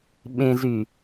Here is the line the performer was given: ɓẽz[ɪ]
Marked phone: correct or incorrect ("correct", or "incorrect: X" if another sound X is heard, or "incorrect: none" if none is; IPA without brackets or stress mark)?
incorrect: y